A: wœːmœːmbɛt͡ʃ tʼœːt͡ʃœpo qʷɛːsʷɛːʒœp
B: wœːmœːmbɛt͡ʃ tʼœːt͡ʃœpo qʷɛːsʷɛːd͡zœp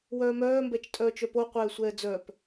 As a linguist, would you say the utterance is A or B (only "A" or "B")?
B